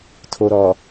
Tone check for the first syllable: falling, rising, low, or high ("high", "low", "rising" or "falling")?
low